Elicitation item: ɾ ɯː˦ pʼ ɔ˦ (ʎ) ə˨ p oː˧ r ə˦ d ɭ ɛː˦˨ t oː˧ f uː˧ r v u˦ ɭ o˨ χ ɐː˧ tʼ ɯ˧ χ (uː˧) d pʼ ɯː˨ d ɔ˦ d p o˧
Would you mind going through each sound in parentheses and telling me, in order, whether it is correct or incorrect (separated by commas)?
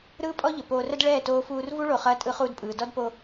correct, correct